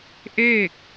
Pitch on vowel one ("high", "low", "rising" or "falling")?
falling